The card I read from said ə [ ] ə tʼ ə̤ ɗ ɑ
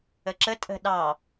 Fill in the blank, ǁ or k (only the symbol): ǁ